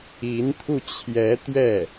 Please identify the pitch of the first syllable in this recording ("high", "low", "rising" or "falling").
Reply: rising